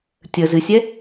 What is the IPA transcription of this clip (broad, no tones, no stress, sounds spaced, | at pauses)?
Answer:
tʲ ə z ɨ sʲ ɛ